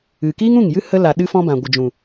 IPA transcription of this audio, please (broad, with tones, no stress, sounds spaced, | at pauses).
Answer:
ɨ˨ k iː˦ ŋ ũ˦˨ ŋ j ɨ˦ h ə˦ l a˨ ɗ ɨ˦ f ɔ̃˦ b ã˨ ɡʷ ə˨ d͡ʒ ũ˨